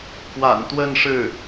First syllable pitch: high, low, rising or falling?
low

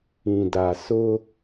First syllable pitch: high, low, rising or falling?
low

